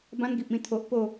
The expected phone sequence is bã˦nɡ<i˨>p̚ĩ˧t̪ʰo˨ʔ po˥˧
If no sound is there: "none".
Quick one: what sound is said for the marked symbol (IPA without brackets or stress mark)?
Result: i˨